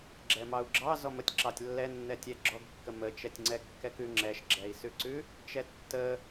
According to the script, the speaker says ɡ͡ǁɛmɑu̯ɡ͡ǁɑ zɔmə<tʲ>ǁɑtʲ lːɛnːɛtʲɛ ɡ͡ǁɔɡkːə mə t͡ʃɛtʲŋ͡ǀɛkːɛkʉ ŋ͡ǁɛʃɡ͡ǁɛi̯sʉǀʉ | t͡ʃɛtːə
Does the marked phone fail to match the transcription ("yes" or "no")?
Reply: no